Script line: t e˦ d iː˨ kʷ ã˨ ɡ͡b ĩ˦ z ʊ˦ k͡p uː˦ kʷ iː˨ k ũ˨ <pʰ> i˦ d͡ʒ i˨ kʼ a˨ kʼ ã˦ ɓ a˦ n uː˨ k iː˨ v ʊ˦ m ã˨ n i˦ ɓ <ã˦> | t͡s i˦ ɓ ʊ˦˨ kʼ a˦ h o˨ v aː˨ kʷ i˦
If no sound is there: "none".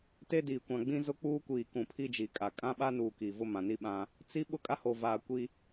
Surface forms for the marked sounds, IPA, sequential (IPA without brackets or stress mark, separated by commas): pʰ, ã˦